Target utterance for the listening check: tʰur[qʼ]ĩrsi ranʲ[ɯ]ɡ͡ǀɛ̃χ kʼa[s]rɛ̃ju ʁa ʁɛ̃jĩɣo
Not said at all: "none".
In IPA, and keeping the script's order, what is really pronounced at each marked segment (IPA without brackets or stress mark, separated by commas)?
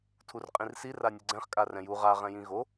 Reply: qʼ, ɯ, none